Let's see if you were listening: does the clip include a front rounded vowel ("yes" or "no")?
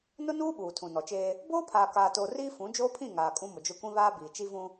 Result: no